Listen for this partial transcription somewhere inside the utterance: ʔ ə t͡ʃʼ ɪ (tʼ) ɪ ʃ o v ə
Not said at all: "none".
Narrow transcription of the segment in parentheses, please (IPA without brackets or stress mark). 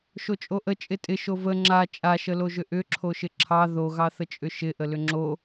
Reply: tʼ